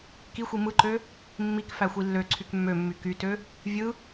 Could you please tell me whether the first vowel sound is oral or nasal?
oral